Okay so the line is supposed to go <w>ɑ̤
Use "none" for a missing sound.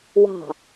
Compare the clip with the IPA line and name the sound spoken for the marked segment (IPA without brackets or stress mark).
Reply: w